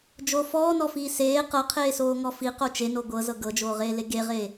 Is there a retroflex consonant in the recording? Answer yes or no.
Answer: no